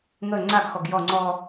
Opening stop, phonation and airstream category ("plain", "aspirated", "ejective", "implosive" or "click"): click